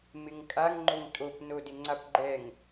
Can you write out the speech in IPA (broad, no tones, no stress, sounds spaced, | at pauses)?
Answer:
m ɪ ŋ kʼ a ŋ ŋ͡ǃ o ŋ tʼ o p n o d ɪ ŋ͡ǀ a p ɡ͡ǃ ɛ ŋ